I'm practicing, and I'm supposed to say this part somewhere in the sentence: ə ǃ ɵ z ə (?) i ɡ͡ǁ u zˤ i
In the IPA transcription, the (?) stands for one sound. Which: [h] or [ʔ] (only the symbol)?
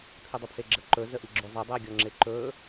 ʔ